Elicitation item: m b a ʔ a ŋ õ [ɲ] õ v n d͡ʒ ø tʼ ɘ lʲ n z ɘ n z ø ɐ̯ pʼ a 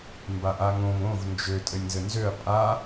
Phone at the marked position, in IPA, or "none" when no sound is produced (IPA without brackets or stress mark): ŋ